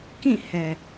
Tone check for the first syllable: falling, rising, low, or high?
falling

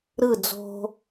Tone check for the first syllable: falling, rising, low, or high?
falling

